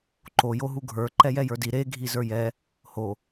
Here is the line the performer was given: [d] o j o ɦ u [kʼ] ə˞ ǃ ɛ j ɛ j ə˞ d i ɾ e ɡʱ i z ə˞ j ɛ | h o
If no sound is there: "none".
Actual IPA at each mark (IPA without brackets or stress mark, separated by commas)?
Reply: ǃ, ɡʱ